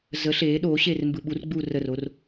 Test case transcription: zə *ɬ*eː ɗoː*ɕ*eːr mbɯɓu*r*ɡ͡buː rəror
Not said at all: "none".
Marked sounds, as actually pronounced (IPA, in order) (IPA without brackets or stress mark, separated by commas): ɬ, ɕ, r